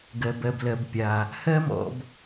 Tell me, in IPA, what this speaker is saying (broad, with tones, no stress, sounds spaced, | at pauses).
ɡ ɜ˨ b ɜ˨ b l ɜ˨ b pʲ a˨ | h ɜ˦ m ɔ̰˧ b